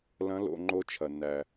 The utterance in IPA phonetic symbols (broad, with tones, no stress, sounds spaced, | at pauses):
l ɐ̃˧˥ l o̰˩˧ ŋ͡ǃ o˧ t͡ʃʰ ɐ˩ nː æ˩